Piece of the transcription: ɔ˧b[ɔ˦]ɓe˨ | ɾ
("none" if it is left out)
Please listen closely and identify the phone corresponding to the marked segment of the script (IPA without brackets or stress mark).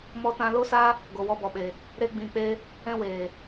ɔ˨